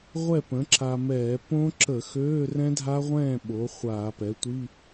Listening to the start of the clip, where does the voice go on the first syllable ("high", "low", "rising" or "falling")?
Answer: falling